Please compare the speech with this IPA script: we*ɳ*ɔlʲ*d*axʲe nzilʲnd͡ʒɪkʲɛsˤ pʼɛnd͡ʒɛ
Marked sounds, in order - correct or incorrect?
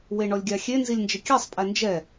correct, incorrect: ɡʲ

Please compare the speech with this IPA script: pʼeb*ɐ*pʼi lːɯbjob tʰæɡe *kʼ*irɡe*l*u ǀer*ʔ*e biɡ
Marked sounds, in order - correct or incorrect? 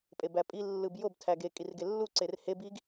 incorrect: æ, correct, incorrect: lː, incorrect: h

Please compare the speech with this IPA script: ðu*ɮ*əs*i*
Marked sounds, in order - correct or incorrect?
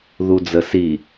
incorrect: d͡z, correct

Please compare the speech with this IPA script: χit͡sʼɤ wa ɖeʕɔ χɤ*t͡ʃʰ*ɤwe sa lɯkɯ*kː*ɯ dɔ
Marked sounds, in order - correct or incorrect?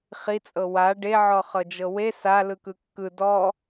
incorrect: d͡ʒ, correct

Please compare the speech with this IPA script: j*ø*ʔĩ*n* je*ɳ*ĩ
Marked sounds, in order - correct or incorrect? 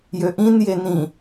correct, correct, incorrect: n

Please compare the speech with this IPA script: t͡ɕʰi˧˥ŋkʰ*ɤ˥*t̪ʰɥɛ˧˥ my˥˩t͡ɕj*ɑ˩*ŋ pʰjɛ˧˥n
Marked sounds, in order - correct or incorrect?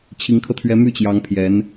incorrect: ɤ˧, incorrect: ɑ˧˥

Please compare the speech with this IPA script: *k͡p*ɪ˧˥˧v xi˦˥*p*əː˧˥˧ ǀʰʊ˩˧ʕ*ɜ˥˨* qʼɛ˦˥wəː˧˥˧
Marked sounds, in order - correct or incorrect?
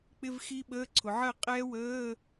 correct, incorrect: ɓ, correct

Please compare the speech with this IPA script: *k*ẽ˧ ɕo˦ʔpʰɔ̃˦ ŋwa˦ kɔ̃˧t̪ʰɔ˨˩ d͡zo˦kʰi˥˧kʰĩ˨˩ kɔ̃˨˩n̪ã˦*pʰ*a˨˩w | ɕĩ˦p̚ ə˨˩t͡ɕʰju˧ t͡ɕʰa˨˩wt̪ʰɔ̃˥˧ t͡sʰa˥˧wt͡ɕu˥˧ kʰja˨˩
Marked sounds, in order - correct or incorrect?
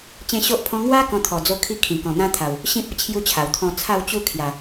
incorrect: t͡ɕ, incorrect: t̪ʰ

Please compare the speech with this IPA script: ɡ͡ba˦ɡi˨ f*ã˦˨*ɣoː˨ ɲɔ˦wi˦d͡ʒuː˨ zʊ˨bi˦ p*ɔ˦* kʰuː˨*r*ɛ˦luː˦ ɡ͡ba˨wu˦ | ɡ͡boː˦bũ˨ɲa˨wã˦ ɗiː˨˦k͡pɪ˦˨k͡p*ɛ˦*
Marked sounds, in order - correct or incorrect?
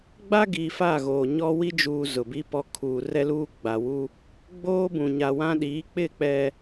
incorrect: a˦˨, incorrect: ɔ˨, correct, correct

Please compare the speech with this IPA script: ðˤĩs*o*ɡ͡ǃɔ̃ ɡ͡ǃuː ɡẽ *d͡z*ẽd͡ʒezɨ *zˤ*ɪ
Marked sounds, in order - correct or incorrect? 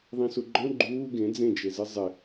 incorrect: u, correct, correct

